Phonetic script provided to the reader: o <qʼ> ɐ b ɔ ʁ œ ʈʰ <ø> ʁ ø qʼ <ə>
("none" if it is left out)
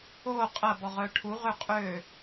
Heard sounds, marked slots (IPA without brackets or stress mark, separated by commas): qʼ, u, ø